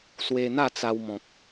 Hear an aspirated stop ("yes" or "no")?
no